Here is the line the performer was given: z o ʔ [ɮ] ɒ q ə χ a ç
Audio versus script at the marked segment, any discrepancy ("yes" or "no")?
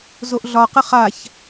no